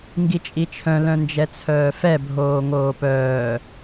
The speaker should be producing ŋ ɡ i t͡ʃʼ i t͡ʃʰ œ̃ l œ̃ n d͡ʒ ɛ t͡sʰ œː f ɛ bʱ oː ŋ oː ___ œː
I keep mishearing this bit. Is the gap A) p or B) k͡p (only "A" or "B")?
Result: A